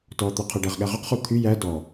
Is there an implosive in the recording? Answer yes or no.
yes